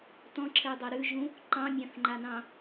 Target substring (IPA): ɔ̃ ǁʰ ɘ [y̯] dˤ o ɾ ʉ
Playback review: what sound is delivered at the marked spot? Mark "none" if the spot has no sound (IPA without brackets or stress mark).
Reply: y̯